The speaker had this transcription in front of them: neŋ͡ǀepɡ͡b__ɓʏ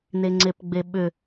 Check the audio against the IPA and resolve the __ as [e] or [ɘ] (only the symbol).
e